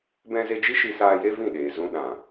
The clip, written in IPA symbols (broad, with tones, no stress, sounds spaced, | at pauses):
b ɛ̃˦ z e˦ d͡ʒ i˦ ʃ i˧ s aː˧ j e˦ v ĩ˦˨ ɗ eː˨ z ũ˧ ɗ ã˨